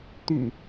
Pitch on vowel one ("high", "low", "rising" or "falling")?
low